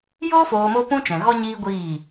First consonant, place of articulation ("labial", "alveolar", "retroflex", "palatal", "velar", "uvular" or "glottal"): palatal